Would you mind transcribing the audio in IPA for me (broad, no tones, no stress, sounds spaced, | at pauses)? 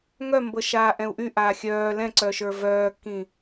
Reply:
ŋ œ m b ɤ ʃ aː ʔ ɛ̃ u̯ ʔ y ʔ aː xʲ œː l ɛ̃ ǀ œ ʃ ə˞ v œː kː ĩ